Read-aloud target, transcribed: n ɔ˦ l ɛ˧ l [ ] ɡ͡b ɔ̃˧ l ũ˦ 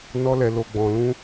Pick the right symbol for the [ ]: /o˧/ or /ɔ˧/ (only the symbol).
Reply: o˧